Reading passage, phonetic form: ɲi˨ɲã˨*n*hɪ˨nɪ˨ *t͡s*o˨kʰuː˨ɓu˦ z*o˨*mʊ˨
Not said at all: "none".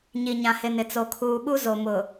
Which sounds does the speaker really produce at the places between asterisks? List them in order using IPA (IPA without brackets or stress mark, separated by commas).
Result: none, t͡s, o˨